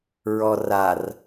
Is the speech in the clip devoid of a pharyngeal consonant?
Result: yes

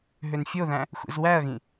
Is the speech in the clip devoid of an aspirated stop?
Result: yes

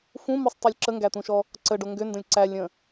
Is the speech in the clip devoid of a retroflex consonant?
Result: no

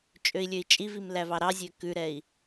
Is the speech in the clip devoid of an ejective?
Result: no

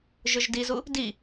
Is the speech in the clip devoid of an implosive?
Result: yes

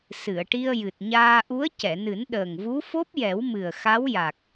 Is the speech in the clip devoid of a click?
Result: yes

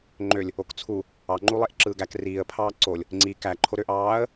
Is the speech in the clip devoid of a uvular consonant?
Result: yes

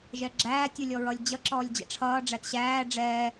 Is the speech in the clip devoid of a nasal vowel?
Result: yes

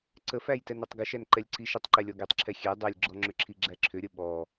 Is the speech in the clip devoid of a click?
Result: no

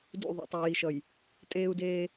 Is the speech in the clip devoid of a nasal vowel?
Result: yes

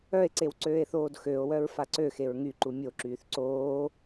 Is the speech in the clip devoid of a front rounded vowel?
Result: no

